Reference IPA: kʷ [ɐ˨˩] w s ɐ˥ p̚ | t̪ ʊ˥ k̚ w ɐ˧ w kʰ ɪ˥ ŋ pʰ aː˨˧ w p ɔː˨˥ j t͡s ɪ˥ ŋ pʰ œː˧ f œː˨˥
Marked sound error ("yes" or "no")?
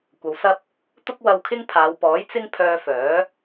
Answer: yes